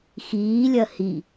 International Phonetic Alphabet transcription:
x iː lʲ ɐ h i

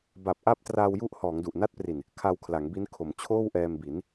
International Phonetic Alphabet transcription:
b a˨˩ p̚ ʔ a˥˩ p̚ t r aː˧ w j u˦˥ ʔ h ɔː˩˦ ŋ d u˨˩ ʔ n a˥˩ t̚ p r i˨˩ n | kʰ a˧ w kʰ l a˩˦ ŋ b i˦˥ n kʰ o˩˦ m t͡ɕʰ oː˥˩ w ʔ ɛː˧ m b i˩˦ n

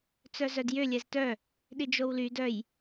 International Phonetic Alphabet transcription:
t͡s œ z œ d j ʏ lʲ ɛ z t œ | ɗ i d͡ʒ o w l y d œ j

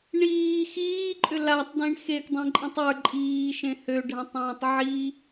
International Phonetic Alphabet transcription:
ɳ iː x iː ǃʼ ʏ l a tˤ d ĩ ɳ x e k dˤ ẽ ǃʼ ĩ tˤ ə˞ ǃʼ iː ʃ ẽ h ø ɖʱ ã tˤ ãː tˤ ʕ i

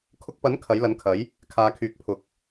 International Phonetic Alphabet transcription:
kʰ ʊ˧ k̚ p ɐ˨˥ n kʰ ɐ˨˥ j l ɐ˨˥ n kʰ ɐ˨˥ j | kʰ aː˨˧ kʰ yː˨˥ k̚ pʰ ʊ˨˥ k̚

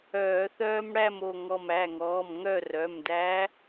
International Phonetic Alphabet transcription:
œː˧˩˧ θ œː˦ m ɽ æ˥˨ m o˧˩ ŋ ɔ˧˩ m æ˩˧˩ ŋ ɔː˩˧˩ m ŋ œ˥˨ r œ˩˧˩ m d æ˨˦

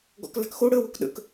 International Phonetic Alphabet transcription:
ɡ ɔ̰ k l a̤ k x o ɽ əː w o k ɗ ə̰ k

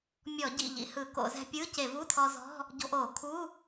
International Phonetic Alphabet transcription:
mʲ ɔ˧˩˧ ɟ ḭ˩˧˩ ʎ ḭ˧ h ɯ˧˩˧ k o̰˧˩˧ z ɛ̤˧ pʲ ɯː˧˥˧ c e˧˩˧ v u˧˥˧ tʰ ɔ˧ z ɔ̤˧˥˧ | ɟ o̤˧ ʔ oː˧˩˧ kʰ u˧˥˧

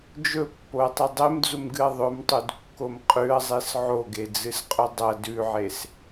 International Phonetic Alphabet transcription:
d͡ʒ ɵ pː o ɐ̯ tˤ ɨ dˤ e m d͡z u m ɡ ɨ ɐ̯ ðˤ ɵ m tˤ u d kː o m qʼ ʉ ɐ̯ zˤ e s ʕ o ɡ e d͡z ɨ s qʼ ɵ dˤ ɐ d ʉ ʕ e s

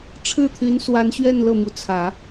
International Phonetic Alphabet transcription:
ʈ͡ʂʰ ɻ̩˥˩ t̪ʰ y˧˥ n s w a˧˥ n ɕ ɥ ɛ˥˧ n l ɤ˥˩ m u˧˥ t͡sʰ ä˨˩˦

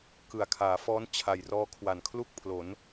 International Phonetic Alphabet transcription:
k ɯ˨˩ a̯ kʰ aː˩˦ f ɔː˦˥ n t͡ɕʰ a˨˩ j r ɔː˦˥ kʰ w a˨˩ n kʰ l u˥˩ k̚ pʰ l o˩˦ n

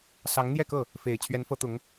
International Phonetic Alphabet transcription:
s ɑ˧˥ ŋ n̪ j ɛ˥˧ k ɤ˥˩ | f e˨˩ ɪ̯ t͡ɕʰ ɥ ɛ˧˥ n f ɤ˧˥ t̪ ʊ˧˥ ŋ

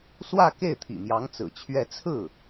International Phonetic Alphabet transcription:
s w ä˥˧ k e˥˩ ɪ̯ t̪ʰ ḭ˨˩ m j ɑ˧˥ ŋ t͡s ɹ̩˨˩ t͡ɕʰ ɥ ɛ˥˧ t͡sʰ ɹ̩˥˩

